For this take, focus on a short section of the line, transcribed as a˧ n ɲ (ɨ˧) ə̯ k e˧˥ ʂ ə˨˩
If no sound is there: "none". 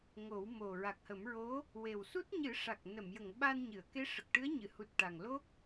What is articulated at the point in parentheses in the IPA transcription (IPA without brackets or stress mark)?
ɨ˨˩˨